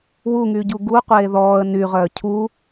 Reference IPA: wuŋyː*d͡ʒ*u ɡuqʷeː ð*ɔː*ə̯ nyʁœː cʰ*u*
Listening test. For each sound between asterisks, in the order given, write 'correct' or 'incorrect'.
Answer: incorrect: ɟ, correct, correct

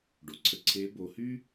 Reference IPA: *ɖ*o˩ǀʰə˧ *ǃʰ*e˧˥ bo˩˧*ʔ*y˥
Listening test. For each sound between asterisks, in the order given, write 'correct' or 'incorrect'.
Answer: correct, incorrect: ǀʰ, incorrect: h

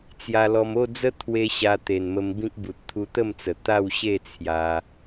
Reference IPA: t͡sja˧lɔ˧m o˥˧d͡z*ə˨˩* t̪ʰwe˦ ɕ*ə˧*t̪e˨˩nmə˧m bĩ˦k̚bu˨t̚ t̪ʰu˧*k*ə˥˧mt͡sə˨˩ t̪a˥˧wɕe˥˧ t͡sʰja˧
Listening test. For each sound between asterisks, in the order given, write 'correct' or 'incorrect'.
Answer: incorrect: ə˦, incorrect: a˧, incorrect: t̪

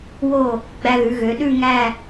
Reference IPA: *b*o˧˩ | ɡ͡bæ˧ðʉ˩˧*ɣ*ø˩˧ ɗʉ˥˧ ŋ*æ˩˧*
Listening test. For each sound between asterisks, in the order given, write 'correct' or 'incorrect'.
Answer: incorrect: w, correct, incorrect: æ˥˧

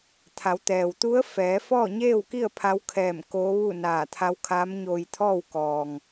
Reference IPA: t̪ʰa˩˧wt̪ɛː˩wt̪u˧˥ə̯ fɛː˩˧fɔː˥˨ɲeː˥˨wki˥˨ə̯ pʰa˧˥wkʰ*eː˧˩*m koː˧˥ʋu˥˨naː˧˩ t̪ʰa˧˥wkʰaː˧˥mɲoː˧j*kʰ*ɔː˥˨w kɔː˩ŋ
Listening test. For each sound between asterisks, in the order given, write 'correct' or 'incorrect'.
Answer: incorrect: ɛː˧˩, incorrect: t̪ʰ

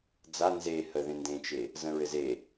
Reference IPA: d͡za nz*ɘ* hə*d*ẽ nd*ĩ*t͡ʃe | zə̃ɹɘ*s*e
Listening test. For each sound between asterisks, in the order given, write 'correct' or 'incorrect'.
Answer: incorrect: e, incorrect: ð, incorrect: ẽ, incorrect: z

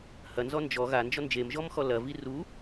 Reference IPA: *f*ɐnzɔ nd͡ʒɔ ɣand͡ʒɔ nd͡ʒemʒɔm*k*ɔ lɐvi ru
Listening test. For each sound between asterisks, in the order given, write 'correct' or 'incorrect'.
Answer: incorrect: h, incorrect: x

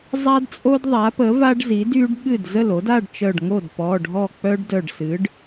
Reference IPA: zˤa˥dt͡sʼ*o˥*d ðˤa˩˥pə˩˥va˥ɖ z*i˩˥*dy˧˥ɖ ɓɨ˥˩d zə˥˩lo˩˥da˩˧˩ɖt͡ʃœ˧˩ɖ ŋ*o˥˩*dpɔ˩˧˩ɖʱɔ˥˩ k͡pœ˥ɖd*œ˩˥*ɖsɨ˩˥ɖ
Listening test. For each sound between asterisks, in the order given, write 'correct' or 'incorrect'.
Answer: correct, correct, correct, incorrect: œ˧˩

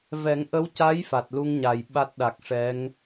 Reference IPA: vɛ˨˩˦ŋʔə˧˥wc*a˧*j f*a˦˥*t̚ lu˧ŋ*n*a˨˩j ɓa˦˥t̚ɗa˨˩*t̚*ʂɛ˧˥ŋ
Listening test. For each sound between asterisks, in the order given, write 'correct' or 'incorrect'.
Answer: incorrect: a˧˥, incorrect: a˨˩, incorrect: ɲ, incorrect: k̚

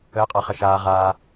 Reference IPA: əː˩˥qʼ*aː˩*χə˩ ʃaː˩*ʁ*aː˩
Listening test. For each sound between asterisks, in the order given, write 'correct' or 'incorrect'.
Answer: incorrect: a˩, correct

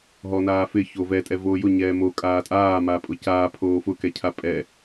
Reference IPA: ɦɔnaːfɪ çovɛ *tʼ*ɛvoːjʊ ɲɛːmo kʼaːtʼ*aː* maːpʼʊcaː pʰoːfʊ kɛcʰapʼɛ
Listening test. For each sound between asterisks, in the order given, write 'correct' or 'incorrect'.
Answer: correct, correct

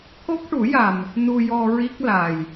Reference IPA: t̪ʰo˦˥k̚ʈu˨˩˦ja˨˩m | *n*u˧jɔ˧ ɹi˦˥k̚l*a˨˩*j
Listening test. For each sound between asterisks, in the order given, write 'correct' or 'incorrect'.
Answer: correct, correct

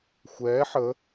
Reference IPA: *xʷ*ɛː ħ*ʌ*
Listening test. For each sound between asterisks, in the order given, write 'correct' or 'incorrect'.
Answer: correct, incorrect: ə

